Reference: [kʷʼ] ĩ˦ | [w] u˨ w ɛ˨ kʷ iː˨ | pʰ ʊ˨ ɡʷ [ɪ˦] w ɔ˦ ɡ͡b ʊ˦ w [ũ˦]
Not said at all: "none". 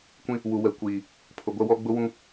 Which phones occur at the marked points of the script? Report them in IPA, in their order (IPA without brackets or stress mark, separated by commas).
kʷ, w, ɛ˦, ũ˦